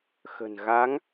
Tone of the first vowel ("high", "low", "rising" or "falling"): low